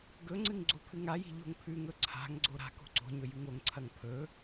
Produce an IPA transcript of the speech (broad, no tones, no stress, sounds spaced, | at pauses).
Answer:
ɡ ɵ ŋ͡ǀ ɨ ŋ ɡ͡ǀ o pʰ ɨ ŋ a j i̤ ʎ o̤ ŋ pʰ ʉ ŋ ɵ ǀʰ a̤ ŋ ɡ͡ǀ o ɾ a̤ k o̤ ǀ o̤ ɲ ɵ j ʉ ŋ o ŋ ǀʰ ɐ ŋ pʰ ɵ